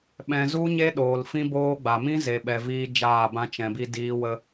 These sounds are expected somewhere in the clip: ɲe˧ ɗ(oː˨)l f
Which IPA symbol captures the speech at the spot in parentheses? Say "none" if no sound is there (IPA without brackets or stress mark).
oː˨